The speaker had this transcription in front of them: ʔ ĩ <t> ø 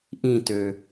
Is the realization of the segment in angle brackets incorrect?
no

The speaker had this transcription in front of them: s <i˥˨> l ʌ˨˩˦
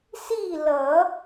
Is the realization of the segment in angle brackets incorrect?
no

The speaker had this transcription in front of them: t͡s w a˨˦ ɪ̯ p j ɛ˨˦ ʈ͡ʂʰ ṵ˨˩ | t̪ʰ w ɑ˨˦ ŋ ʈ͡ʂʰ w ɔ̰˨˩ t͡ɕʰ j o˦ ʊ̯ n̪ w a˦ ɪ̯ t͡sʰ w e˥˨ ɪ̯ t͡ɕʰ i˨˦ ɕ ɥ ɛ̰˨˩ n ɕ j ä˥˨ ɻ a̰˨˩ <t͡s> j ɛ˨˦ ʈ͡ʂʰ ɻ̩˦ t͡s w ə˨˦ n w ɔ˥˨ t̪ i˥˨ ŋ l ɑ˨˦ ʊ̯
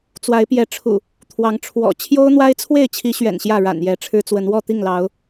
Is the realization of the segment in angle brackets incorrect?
yes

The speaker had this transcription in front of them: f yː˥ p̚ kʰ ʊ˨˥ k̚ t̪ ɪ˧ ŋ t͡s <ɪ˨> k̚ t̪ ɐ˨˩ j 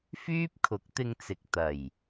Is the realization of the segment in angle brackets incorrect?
no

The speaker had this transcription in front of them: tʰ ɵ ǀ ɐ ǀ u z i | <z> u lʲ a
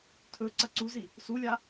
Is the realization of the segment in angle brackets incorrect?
yes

